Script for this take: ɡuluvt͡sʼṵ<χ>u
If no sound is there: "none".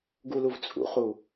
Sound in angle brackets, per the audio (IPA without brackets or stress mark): χ